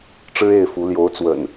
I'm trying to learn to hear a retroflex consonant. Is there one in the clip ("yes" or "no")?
yes